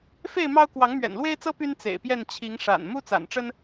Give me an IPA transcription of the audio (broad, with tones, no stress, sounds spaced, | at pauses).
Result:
f e˥˨ ɪ̯ m ɑ˦ ʊ̯ k w ɑ˨˦ ŋ m ɥ ɛ̰˨˩ n l w e˦ ɪ̯ t͡s ɤ˦ p y˦ n t͡s ḛ˨˩ ɪ̯ p j ɛ˥˨ n t͡ɕʰ i˨˦ ŋ ʂ a̰˨˩ n m u˦ t͡s a̰˨˩ n ʈ͡ʂ ə˦ n